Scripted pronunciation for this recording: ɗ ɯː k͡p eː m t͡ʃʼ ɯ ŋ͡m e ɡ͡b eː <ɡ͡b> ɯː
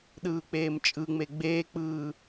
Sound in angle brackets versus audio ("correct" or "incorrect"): incorrect